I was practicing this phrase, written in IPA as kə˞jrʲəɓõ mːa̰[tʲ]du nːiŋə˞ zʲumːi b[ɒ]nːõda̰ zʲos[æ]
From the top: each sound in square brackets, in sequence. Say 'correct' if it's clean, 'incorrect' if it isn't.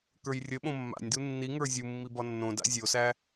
incorrect, correct, correct

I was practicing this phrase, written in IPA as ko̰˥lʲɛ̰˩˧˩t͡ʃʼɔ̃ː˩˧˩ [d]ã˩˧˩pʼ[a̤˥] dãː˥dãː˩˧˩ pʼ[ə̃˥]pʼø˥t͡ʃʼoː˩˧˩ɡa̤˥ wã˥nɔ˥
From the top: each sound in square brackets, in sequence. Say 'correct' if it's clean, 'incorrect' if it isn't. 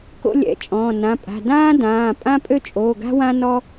incorrect, incorrect, incorrect

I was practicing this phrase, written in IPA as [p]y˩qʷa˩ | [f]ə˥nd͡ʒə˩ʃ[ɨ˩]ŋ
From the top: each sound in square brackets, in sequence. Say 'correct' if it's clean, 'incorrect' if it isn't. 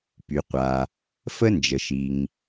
correct, correct, incorrect

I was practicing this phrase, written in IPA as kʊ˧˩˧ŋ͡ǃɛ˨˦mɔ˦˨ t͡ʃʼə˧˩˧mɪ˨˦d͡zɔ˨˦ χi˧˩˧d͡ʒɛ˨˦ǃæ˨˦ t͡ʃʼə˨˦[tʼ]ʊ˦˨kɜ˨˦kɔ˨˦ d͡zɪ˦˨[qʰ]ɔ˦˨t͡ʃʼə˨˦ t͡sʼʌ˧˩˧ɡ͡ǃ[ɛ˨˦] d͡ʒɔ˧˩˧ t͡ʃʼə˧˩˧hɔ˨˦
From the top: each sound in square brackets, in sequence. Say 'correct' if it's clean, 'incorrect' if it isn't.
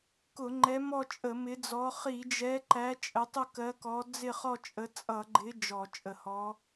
incorrect, incorrect, incorrect

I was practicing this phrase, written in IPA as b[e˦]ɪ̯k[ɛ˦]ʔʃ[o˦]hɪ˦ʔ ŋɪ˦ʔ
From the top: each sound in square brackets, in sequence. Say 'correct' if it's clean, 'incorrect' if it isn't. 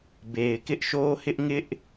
incorrect, incorrect, correct

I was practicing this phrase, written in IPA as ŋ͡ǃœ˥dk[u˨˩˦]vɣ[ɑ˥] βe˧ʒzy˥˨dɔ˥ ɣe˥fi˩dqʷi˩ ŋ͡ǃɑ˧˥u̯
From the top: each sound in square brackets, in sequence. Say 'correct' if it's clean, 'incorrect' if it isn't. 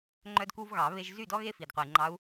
incorrect, incorrect

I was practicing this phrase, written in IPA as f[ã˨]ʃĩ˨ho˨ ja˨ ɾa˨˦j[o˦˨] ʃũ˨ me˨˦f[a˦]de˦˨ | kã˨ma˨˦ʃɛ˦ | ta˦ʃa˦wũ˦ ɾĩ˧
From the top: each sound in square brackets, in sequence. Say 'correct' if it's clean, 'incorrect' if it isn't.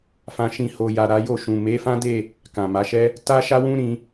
correct, correct, incorrect

